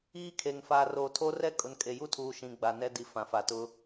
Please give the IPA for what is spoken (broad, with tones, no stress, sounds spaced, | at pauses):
iː˦ kʰ e˨ ŋ f aː˨ r oː˨ tʰ oː˦ r ɛ˦ kʼ ʊ˨ n kʼ e˨ j u˦ tʰ uː˨ ʃ ĩ˨ ɡ͡b a˨ n ɛ˦ d i˨ f ã˨ f a˨ t ʊ˦